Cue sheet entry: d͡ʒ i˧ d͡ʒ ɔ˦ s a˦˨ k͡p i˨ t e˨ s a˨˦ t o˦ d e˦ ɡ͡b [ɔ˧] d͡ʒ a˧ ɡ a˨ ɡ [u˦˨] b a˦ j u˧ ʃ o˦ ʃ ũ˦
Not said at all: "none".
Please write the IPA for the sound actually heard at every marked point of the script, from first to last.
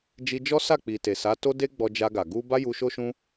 ɔ˧, u˧

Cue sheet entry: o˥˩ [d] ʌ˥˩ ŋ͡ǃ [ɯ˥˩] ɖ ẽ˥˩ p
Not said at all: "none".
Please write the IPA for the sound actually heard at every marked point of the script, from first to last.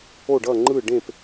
ɖ, ɯ˥˩

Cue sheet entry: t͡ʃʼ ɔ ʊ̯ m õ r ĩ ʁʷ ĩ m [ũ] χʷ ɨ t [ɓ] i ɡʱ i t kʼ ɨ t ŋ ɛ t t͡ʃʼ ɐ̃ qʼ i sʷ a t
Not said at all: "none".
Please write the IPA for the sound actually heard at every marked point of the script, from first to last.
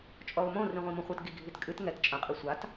õ, ɡ

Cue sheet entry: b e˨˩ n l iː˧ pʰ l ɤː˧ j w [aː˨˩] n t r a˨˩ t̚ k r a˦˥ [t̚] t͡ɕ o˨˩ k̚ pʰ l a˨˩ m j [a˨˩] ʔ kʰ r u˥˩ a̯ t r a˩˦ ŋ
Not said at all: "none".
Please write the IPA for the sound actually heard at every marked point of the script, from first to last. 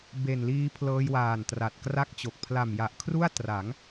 aː˨˩, k̚, a˨˩

